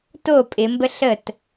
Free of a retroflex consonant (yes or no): yes